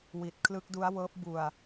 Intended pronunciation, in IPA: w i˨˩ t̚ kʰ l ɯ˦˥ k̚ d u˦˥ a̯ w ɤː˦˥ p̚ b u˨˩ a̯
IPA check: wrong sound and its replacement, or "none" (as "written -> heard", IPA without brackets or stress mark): none